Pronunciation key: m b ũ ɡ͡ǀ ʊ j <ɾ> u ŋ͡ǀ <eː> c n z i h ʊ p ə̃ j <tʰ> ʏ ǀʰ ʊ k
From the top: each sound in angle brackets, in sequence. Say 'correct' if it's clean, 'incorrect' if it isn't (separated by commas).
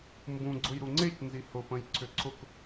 correct, incorrect, incorrect